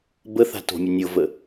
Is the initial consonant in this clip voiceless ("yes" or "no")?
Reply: no